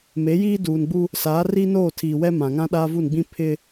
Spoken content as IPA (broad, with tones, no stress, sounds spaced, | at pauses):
m e˨˦ j iː˦ d uː˨ n ɡ͡b u˦ | s aː˨˦ r iː˦ n oː˦˨ tʰ iː˨ w ɛ˦ m ã˨ ŋ ã˦ ɗ aː˦ v u˦˨ n ɡ͡b ĩ˦ pʰ ɪ˦